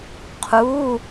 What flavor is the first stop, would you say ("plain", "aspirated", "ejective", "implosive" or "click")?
aspirated